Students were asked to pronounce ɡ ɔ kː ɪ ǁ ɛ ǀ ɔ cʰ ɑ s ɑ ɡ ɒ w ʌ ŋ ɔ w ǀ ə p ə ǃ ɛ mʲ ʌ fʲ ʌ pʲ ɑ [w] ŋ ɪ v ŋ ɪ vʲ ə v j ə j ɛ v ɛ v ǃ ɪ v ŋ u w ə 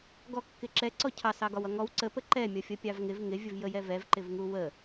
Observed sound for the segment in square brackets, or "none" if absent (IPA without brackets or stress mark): v